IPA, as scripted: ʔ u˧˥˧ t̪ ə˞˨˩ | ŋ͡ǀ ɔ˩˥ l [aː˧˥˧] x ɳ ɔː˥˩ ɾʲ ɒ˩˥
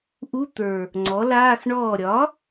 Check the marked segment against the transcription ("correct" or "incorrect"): correct